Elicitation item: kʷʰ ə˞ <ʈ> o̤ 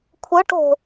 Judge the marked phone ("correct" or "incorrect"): correct